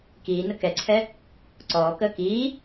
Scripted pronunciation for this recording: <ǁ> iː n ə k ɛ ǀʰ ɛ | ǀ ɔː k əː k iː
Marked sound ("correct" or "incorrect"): incorrect